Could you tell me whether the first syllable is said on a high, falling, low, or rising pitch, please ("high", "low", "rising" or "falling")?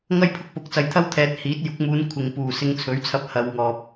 high